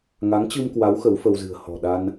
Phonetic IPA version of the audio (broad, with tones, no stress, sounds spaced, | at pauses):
ŋ a˨˦ ŋ t͡ɕ ɨ˧ m k w a˨˦ w x ə˨˦ w f ə˧ w z ɨ̤˨˩ ə̯ h ɔ̤˨˩ ɗ a˧ n